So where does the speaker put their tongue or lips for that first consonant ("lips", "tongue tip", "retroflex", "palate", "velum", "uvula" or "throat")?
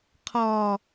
uvula